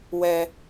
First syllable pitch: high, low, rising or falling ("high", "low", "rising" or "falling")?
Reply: high